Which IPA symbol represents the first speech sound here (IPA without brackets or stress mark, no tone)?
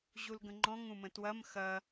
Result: ʑ